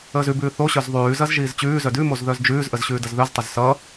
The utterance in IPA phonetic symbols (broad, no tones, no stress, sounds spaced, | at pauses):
əː z ʉ b ʉː θ o ɕ œ z ðˤ ʉː z ɐ z ʒ iː z t͡ɕ ʉː z œ d ʉ m o z ð œ z d͡ʒ ʉː z ʔ ə z ɕ ʉː d ɐ z ð œ z tˤ ɐ z s ʌ